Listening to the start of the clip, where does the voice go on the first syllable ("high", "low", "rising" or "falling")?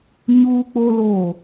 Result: high